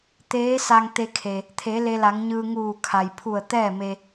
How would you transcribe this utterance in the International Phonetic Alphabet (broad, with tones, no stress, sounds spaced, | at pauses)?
t̪ eː˧˥ s a˧ ŋ t̪ e˧ kʰ e˩ | t̪ʰ e˩˧ l e˧ l a˩˧ ŋ ɲ ɯː˧ ŋ uː˧˩ kʰ a˩ j pʰ u˧˩ ə̯ t̪ ɛː˥˨ m e˧